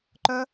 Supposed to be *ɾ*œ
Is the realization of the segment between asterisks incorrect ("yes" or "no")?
yes